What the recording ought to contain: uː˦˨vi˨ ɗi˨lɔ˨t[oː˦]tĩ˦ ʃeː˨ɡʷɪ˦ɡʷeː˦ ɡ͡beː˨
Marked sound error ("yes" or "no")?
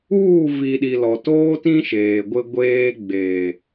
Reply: no